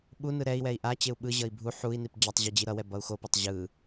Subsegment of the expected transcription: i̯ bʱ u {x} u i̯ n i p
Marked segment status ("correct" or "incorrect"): incorrect